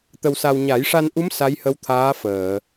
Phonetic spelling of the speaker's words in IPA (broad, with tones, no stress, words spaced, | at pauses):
t̪ə˧wsa˧w ɲa˨˩˦jʂa˧nʔu˧˥m sa˧˥jhə˧˥w t̪ʰaː˧˥fəː˨˩˨